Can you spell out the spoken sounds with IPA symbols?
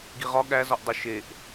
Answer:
ɡ i ʁ ɒ ɠ æ z ɒ ʔ dˤ u ʃ e ʔ

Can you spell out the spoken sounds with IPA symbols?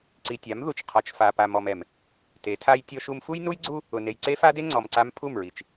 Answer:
ǀ i˨ tʲ a˨˦ m ð u˨ t͡ʃ qʰ ɔ˨ t͡ʃ f a˨ p a˨ m ɔ˨ m ɛ˨ m | t e˨˦ tʰ a˦ j tʲ ɔ˦ ʃ u˦ m f u˦ j n u˦ j ɡ͡ǀ u˦ | ʊ˨ n e˨ j ǀ e˦ f a˦ d e˦ ŋ͡ǀ ɔ˨ m ǀ a˦ m pʰ u˦˨ m ɹ i˨ t͡ʃ

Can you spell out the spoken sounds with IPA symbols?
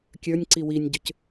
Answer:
kʲ ə˞ nʲ ǀ i w i nʲ ɟ ʏ c

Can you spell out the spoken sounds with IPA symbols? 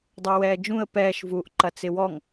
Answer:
dˤ ə˞ w ɛː d͡ʒ ũ ə̯ p ɛː ʃ v uː ʔ ǃ ɐ t͡s ɪ w ɔ ŋ

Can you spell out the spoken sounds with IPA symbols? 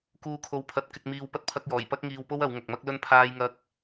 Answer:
k uː˨ kʰ o˨˧ w pʰ ɐ˨˥ t̚ k ɪ˧ k̚ m iː˧ w p ɐ˧ t̚ pʰ ɐ˧ k̚ j ɔː˨˩ j p ɐ˥ k̚ ŋ iː˧ w p o˥ w ɐ˨˧ w ŋ ɐ˨ k̚ m ɐ˥ k̚ l ɵ˥ n pʰ aː˥ j ŋ ɐ˥ k̚

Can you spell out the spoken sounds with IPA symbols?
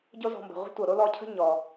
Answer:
ɟ o˦ z ɔ̤˨ m b ə̤˩ ʁʷ ə̤˥ tʷ ɤ˩ ɾ o˥ l ɔ˦ cʰ ə̤˥ ɲ ɔ˩

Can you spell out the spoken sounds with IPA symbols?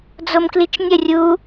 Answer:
d͡z o m k l i t͡ʃ nʲ ə rʲ u

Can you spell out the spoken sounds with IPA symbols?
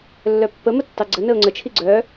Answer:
lː œ pː ə m ə tː ɑ ɡ͡ǀ ə n ə ʊ̯ ŋ͡ǀ ə t͡ʃʰ i ɡ͡ǀ œ

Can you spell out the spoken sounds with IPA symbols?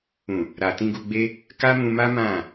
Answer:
ũ˨ | ɾ a˨ t ĩ˧ ɡ u˧ ɡ͡b e˦ | k a˦ m ũ˧ m a˦ m ã˦˨

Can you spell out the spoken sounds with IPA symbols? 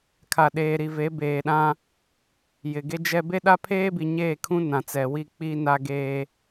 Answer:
kʰ a˨ ɗ eː˨ ɾ i˨ v e˨˦ b eː˨ ɗ ã˦ | j ɪ˨ ɡ e˦ d͡ʒ ɛ˦ b e˦ ɗ a˦ pʰ eː˦ b i˨ ɲ eː˦˨ kʰ ũ˦ n ã˨ t͡s ɛ˨ w i˦˨ k͡p i˦ n a˦ ɡ eː˦

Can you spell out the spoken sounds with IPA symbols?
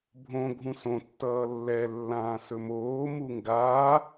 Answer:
bʱ õ ɡʱ ũ s õ tː ʌː lː ɛ lː ãː s ɵ m oː m u ŋ ɡ aː

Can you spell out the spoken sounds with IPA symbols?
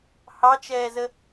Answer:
h ɑ t͡ʃ ɛː z ə

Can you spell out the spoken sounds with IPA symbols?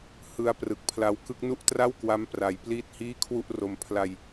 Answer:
h ɯ˦˥ a̯ p r ɯ˨˩ k̚ pʰ l a˦˥ w k ɯ˦˥ k̚ n u˥˩ ʔ t r a˥˩ w k w a˦˥ m p r a˧ j p l iː˥˩ t̚ h iː˥˩ kʰ w u˥˩ ʔ r o˧ m pʰ l a˧ j

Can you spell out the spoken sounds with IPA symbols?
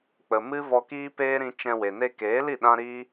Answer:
k͡p ə˨ m ɨ˦ v ɔ˧ k iː˦ p eː˦ ɾ ĩ˧ t͡ʃ ɛ̃˧ w e˨ n e˧ k eː˨˦ l i˦˨ ɗ ã˦ ɾ iː˦

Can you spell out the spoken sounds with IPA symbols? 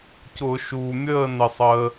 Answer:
c ʊ˧˩˧ ʃ uː˩ mʲ əː˥˨ n ɪ˩ sˤ əː˩

